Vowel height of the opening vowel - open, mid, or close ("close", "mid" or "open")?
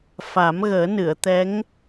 open